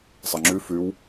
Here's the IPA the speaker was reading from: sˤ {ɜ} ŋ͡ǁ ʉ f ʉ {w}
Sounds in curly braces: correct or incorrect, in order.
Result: correct, correct

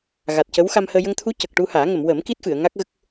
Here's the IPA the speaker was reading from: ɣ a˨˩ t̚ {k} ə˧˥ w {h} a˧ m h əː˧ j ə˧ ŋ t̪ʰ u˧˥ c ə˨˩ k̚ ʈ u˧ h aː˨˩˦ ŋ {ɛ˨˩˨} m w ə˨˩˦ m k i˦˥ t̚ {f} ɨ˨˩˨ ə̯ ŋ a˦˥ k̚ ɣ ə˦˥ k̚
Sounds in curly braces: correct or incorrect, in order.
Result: incorrect, incorrect, incorrect, correct

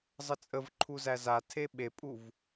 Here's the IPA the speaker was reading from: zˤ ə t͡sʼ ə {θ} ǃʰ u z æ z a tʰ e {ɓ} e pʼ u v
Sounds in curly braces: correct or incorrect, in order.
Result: incorrect, correct

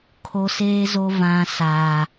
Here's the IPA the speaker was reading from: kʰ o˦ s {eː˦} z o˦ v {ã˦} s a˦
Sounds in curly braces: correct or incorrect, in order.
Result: correct, correct

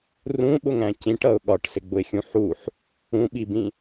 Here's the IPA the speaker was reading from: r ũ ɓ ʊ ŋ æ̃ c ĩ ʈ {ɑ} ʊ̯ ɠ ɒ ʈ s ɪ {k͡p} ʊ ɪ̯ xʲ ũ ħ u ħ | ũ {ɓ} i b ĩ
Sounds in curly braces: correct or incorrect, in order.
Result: incorrect, incorrect, correct

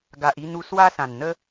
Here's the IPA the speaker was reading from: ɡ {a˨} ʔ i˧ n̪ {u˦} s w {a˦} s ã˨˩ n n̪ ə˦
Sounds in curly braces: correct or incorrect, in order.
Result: correct, incorrect, correct

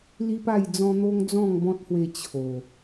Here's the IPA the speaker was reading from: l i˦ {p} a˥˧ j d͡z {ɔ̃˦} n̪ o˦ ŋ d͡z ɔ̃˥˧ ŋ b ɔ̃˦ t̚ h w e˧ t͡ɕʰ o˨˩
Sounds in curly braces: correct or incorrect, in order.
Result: correct, correct

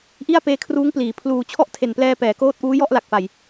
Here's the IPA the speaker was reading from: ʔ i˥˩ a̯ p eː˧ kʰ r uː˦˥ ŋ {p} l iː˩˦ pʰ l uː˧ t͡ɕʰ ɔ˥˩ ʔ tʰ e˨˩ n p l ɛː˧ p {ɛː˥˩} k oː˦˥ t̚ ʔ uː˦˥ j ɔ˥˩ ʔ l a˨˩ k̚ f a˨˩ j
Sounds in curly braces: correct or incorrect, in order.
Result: correct, incorrect

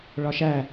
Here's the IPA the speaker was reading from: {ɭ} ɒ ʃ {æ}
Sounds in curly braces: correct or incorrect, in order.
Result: correct, correct

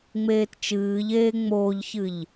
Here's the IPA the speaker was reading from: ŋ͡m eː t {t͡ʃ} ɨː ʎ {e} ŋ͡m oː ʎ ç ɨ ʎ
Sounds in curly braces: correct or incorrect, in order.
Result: correct, incorrect

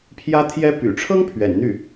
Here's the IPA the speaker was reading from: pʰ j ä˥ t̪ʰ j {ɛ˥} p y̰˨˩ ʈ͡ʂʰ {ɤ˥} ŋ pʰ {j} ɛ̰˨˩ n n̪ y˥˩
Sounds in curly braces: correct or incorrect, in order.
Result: correct, correct, incorrect

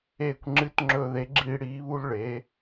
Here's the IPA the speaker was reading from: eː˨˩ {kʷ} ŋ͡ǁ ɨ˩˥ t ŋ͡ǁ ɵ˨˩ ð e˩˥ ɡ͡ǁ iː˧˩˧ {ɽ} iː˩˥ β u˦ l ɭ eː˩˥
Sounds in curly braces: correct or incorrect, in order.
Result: correct, correct

